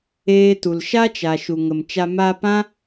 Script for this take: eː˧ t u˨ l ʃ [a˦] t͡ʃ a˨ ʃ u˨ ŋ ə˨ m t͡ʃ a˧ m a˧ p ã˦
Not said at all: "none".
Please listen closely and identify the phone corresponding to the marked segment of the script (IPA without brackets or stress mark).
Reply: a˦